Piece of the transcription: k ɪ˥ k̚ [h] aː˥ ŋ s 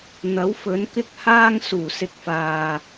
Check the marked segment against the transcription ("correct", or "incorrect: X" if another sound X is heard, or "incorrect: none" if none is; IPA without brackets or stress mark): correct